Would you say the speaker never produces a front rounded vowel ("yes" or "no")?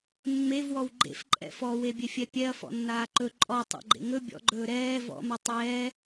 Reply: yes